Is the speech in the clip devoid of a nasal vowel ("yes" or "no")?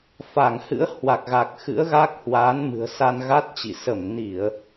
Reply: yes